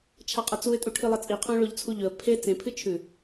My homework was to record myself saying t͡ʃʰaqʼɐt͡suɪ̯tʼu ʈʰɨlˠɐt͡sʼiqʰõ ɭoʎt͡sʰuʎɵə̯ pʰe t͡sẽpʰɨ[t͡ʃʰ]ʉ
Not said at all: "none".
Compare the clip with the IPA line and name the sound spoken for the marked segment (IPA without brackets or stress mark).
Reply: t͡ʃʰ